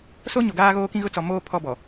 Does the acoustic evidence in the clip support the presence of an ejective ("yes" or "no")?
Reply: no